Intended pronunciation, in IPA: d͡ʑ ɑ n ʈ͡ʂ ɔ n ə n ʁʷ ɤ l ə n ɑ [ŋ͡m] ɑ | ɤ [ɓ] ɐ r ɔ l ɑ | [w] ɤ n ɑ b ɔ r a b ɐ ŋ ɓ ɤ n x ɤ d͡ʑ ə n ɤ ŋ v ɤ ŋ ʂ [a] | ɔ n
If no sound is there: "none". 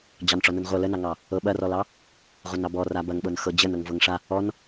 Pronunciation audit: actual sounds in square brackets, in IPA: ŋ, ɓ, ʁʷ, a

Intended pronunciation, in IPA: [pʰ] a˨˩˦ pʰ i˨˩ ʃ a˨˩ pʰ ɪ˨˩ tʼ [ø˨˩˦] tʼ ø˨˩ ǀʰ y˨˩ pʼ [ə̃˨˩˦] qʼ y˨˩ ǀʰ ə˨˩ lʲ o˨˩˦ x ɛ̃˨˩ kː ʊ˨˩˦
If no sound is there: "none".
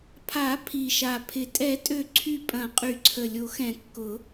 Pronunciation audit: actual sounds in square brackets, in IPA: pʰ, ɛ˨˩˦, ɐ̃˨˩˦

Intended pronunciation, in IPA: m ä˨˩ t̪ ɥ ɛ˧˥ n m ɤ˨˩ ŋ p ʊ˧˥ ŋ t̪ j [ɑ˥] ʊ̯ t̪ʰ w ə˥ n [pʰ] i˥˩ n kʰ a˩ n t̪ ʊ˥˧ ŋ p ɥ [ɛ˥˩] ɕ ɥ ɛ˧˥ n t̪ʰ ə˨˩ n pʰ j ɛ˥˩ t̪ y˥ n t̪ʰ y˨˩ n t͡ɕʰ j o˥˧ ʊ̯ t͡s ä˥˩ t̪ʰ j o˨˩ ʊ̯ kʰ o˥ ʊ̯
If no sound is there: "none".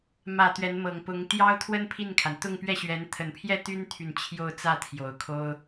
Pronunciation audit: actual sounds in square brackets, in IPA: ɑ˥, pʰ, ɛ˥˩

